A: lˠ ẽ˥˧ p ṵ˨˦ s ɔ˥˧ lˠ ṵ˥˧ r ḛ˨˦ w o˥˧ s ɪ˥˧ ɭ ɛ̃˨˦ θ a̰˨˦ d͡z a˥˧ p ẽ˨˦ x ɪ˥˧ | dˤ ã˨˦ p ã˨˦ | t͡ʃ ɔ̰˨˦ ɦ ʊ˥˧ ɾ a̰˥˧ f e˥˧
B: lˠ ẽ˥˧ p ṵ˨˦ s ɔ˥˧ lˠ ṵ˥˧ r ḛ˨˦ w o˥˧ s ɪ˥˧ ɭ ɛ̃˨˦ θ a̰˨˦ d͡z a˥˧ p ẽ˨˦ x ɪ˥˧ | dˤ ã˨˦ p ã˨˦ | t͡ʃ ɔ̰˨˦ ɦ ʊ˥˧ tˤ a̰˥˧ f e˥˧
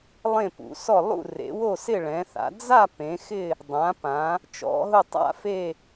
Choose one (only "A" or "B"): B